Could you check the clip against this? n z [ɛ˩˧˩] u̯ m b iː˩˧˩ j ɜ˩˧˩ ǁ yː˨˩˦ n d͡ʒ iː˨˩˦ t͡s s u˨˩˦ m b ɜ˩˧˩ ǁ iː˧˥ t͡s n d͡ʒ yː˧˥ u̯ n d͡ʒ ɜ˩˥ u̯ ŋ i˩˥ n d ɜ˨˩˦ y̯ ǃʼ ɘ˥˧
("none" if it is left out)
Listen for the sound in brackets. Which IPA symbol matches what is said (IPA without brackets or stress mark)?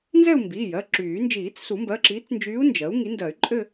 ɛ˥˧